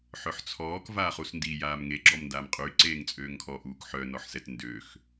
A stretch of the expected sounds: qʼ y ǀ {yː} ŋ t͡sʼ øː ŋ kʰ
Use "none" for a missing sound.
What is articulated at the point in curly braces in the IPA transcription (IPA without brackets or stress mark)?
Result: eː